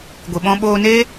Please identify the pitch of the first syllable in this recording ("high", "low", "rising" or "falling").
low